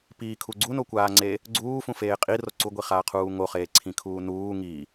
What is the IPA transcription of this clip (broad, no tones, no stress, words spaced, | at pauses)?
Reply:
piːkʰu ɡ͡ǀunokʷaːŋ͡ǀe | ɡ͡ǀuːfũfeː qʼiro ǀuɡʷiχaːqʰuː ŋoχeːǀʰĩkʰuː nuː ŋi